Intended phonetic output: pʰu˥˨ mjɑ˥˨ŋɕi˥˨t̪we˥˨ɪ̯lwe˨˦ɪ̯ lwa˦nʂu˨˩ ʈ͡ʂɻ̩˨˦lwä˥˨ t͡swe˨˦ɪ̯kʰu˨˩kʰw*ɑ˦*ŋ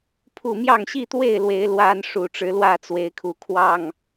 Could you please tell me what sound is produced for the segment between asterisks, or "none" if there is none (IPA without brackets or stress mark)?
ɑ˥˨